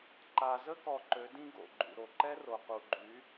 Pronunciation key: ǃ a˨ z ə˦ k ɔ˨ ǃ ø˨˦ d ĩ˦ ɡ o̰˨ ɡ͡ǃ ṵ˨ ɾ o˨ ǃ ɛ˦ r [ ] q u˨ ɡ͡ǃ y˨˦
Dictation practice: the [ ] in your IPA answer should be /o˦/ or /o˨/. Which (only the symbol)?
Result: o˨